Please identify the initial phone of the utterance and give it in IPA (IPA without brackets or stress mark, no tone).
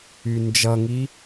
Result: y